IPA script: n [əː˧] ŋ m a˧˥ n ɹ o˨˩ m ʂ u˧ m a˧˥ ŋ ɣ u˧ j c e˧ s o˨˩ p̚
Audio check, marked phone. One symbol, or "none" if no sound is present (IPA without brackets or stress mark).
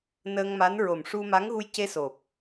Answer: əː˧